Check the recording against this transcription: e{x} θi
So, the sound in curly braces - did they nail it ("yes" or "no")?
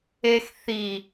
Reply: yes